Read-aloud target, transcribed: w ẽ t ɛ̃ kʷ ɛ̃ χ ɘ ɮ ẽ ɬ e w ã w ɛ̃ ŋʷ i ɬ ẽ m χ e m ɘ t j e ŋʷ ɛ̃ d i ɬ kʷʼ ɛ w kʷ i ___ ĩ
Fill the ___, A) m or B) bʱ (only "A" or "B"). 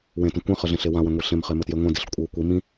A